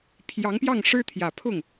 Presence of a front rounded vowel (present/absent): absent